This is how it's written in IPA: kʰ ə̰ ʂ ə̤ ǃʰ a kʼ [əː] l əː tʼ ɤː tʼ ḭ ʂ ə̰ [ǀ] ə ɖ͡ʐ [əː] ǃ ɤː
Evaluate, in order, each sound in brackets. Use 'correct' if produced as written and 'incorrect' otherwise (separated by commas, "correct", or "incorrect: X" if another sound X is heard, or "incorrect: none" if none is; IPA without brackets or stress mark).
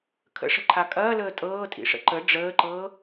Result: incorrect: ɐː, incorrect: ǃ, correct